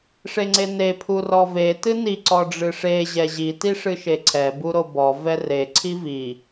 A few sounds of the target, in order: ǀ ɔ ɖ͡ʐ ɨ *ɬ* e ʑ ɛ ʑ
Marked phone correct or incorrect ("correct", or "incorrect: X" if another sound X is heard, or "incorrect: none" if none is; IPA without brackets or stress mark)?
incorrect: ʂ